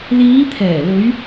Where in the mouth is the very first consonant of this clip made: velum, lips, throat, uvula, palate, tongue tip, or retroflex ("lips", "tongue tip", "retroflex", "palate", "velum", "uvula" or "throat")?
tongue tip